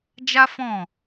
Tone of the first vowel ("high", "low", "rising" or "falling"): high